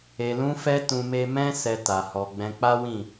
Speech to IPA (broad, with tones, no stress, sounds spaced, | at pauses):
e˨ l ũ˧ f ɛ˧ t ũ˧ m e˦ m ɛ̃˦ s ɛ˧ t a˨ h ɔ˨ ɡ͡b ɛ̃˧ k͡p a˦ w ĩ˦˨